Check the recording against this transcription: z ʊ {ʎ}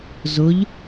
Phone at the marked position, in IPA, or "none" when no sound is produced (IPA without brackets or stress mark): ʎ